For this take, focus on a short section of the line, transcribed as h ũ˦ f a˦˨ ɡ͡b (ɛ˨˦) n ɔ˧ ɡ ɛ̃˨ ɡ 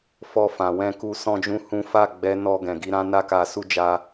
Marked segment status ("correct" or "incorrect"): correct